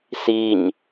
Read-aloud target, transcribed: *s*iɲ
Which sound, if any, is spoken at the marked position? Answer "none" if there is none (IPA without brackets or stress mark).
s